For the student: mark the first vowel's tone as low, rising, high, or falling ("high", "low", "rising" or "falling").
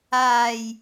low